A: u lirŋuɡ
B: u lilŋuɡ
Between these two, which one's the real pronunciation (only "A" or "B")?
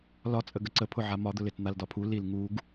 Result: B